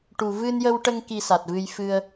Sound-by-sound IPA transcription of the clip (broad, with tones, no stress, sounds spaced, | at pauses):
ʈ u˨˩ v ɨ˧ n j ə˧ w ʈ ə˧ ŋ k i˧ s a˨˩ t̚ v ɨ˧ j f ɨ˧ ə̯